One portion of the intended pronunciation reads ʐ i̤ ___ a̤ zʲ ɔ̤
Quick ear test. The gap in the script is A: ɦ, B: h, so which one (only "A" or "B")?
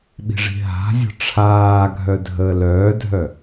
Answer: A